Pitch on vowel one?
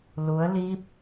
rising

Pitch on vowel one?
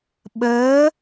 rising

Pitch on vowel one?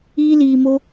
high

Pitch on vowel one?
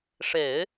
low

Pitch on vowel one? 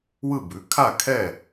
falling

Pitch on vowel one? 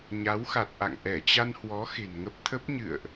rising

